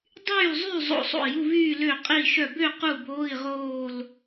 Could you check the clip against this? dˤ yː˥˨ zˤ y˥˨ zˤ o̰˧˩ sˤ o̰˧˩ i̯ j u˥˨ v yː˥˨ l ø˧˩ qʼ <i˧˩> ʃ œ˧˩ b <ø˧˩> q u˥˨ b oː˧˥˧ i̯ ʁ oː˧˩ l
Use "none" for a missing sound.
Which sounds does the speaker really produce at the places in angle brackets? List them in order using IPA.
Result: i˧˩, ø˥˨

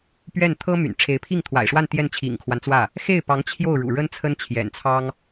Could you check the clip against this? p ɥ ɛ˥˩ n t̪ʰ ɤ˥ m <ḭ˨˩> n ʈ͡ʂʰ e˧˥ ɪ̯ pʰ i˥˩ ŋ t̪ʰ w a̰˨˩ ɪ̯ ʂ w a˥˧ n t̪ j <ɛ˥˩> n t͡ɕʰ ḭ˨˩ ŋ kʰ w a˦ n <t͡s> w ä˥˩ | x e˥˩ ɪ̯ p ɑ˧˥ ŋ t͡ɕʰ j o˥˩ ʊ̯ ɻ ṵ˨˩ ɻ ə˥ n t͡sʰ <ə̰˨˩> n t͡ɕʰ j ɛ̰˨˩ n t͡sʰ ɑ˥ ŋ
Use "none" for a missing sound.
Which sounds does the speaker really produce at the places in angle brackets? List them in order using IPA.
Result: y̰˨˩, ɛ˥˩, t͡s, ə˥

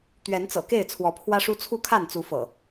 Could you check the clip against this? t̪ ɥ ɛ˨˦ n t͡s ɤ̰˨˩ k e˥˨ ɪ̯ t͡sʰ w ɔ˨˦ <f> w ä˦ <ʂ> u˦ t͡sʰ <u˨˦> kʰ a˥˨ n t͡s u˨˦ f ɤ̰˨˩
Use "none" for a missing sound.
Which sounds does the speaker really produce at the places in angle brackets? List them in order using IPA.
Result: pʰ, ʂ, u˥˨

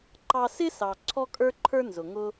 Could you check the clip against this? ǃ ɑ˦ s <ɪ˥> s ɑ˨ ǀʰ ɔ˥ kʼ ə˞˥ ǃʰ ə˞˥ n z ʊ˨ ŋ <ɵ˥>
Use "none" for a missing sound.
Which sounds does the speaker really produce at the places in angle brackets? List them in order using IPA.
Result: ɪ˥, ʊ˥

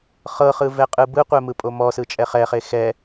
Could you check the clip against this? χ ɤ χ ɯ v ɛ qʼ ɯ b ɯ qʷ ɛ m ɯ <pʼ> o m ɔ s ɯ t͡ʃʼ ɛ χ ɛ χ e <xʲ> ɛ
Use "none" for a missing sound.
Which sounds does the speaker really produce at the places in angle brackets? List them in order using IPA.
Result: pʼ, x

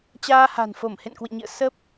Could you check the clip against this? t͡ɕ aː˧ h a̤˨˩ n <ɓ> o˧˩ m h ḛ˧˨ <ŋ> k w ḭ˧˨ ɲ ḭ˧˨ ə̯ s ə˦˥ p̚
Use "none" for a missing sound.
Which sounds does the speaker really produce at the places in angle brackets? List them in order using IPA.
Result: f, n

